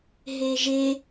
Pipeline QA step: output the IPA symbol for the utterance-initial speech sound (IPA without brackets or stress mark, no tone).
ɦ